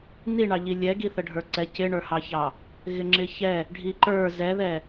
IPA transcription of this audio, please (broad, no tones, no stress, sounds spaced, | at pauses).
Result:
n i ɳ ɑ ʎ i lʲ ɛ ɡ i θ ə ɖʱ ə˞ ǀ ɛ c ɪ ɳ ə˞ h ɑ ç ɑ | ɣ ɪ ŋ͡ǁ ɪ ç ɛ | ɖʱ i ǃ ə˞ z ɛ ð ɛ